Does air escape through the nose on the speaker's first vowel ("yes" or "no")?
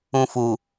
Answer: yes